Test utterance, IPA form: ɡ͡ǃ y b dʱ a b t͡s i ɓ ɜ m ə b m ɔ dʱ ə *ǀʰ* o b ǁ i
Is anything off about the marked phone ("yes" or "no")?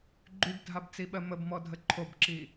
yes